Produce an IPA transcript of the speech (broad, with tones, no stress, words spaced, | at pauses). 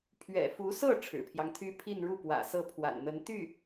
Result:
pʰɥɛ̰˨˩fu˧˥sɤ˥˩ ʈ͡ʂʰɻ̩˨˩pʰjɑ˦ŋt̪ʰy˥ pʰi˥˧nɻu˥˩pwä̰˨˩ sɤ˥˩pʰwa̰˨˩nn̪ə˧˥n t̪y˥˩